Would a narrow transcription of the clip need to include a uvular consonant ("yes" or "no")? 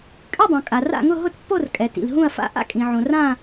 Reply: no